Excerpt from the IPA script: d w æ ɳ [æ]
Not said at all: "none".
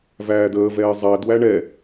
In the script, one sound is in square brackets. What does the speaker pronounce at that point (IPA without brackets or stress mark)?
ɛ